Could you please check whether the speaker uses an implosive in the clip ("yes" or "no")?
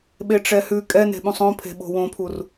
yes